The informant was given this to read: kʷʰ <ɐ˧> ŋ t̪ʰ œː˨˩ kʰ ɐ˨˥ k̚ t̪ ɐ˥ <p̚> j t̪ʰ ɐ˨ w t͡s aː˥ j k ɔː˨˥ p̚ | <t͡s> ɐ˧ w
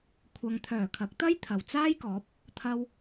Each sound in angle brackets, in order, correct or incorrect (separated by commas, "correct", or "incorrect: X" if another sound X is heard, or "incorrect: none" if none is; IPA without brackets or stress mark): correct, incorrect: none, incorrect: t̪ʰ